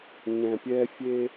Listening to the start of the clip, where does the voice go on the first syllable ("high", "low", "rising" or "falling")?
low